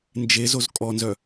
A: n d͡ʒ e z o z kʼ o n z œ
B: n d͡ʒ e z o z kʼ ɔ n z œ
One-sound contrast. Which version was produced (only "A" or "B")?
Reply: B